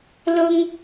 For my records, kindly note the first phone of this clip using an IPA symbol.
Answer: l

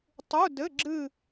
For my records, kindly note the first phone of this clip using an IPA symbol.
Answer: tˤ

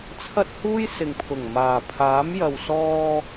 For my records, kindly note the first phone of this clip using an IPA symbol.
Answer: t͡sʰ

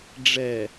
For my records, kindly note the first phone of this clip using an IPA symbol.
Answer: ɖ͡ʐ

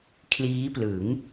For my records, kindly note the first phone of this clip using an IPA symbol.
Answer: kʰ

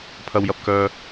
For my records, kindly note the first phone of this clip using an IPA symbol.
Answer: pʰ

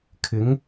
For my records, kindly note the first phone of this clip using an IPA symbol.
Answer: kʰ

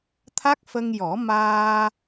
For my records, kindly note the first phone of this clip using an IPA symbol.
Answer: t̪ʰ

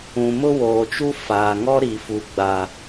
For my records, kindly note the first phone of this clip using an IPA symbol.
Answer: ũ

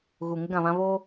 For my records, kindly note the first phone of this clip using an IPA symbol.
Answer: ɣ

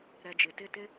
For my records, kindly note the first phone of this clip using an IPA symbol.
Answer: ɾ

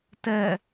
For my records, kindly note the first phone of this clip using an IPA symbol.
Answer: t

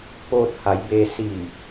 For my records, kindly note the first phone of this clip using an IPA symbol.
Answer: p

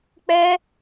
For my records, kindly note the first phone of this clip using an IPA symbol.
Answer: k͡p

